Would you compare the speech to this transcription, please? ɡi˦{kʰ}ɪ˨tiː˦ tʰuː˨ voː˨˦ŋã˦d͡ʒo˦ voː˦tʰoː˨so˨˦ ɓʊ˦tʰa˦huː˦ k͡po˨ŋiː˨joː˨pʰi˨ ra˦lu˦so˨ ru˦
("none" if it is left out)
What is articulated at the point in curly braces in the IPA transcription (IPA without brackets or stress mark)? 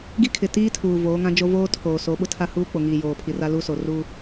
kʰ